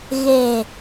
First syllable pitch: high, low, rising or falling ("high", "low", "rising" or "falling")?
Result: low